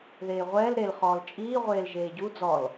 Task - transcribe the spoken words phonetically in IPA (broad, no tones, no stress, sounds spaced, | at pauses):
ð eː ʁʷ ɛː l ɾ e l χ ɔː l t͡ʃʼ iː ʁʷ eː l ʒ eː ɟ u d͡z ɔ l